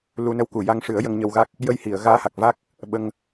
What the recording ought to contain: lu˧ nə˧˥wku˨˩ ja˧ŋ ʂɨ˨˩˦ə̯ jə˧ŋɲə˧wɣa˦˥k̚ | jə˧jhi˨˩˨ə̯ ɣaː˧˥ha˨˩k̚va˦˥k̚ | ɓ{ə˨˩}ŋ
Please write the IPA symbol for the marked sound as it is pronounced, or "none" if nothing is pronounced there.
ə˧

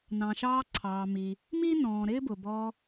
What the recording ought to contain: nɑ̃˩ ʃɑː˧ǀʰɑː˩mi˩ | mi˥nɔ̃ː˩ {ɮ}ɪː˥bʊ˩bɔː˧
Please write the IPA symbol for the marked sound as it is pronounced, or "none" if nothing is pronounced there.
ɾ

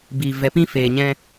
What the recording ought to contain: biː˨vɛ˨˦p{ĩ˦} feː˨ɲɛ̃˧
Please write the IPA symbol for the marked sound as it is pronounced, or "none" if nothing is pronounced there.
ĩ˦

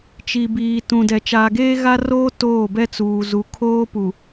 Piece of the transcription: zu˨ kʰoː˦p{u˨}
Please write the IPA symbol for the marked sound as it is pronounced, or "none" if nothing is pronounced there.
u˨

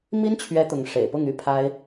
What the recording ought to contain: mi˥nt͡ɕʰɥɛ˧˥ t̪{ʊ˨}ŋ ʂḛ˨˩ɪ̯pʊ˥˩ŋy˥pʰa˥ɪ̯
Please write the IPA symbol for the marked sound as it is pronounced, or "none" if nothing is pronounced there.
ʊ˧˥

